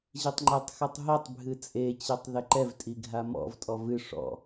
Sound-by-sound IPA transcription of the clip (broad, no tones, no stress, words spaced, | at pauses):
ʑitˤŋ͡ǃetˤxɨtˤ ɦetˤ bʱɨt͡sʼet͡ɕɛtˤ ðɘǃɛvtʼi ɡʱamɔ̰vtʼɔ vɨ ʂɔ̰